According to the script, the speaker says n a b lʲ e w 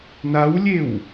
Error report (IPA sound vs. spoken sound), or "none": b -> w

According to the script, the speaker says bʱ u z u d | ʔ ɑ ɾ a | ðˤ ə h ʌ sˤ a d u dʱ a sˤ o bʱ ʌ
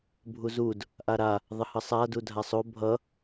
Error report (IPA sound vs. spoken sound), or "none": ɑ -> a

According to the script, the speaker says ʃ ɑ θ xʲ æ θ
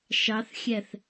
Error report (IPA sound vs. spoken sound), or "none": none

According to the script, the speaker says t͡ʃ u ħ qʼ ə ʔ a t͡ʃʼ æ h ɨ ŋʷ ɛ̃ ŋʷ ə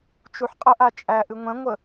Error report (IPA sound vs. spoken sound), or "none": h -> ʔ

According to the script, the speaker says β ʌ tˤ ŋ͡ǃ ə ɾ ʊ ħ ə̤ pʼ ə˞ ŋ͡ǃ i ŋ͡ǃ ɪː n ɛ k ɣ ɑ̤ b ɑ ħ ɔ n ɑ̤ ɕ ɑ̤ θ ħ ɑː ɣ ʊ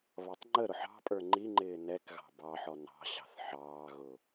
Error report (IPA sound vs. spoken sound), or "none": ə̤ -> ɑ̤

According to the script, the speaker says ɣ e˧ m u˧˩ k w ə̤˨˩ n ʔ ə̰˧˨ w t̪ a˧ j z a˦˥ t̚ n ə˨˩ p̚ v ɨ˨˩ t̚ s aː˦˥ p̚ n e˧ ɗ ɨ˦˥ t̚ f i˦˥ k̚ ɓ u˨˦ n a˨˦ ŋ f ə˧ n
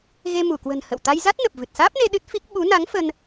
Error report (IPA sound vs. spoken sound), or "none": ʔ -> h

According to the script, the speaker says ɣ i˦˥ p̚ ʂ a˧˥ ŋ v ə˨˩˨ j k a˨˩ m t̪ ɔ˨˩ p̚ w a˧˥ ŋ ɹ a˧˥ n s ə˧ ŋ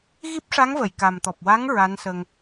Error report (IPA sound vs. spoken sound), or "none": none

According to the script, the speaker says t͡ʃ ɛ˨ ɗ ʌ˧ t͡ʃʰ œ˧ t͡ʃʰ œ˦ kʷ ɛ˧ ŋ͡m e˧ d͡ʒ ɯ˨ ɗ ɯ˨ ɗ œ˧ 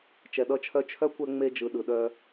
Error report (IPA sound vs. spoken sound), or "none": none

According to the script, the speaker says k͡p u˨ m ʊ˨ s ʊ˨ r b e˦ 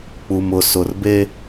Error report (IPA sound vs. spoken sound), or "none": none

